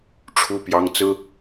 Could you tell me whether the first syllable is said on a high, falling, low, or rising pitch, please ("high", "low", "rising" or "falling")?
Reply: high